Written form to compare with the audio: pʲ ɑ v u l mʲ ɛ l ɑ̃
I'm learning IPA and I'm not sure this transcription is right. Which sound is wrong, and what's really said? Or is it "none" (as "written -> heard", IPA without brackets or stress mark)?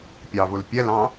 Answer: mʲ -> pʲ